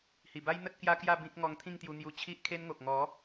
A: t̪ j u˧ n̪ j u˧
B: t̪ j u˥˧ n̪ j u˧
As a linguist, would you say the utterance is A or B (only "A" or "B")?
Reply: A